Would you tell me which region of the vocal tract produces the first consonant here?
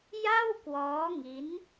palate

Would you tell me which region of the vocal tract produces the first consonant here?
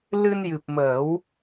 tongue tip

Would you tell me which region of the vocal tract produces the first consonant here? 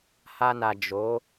throat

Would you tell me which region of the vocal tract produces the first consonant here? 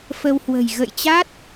lips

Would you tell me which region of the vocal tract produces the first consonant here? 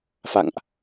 lips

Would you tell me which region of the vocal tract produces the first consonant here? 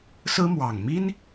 tongue tip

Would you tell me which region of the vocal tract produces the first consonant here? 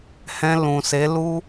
throat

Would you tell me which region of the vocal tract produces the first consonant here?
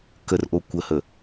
velum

